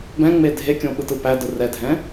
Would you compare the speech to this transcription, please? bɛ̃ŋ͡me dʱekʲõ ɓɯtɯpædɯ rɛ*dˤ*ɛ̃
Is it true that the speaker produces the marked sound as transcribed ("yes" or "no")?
no